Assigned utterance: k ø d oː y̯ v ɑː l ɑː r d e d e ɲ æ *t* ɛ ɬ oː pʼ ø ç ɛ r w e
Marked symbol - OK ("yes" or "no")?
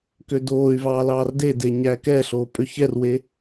no